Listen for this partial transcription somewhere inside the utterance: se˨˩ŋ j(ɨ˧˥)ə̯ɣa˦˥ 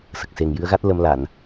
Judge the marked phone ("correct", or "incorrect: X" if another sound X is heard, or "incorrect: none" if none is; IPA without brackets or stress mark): correct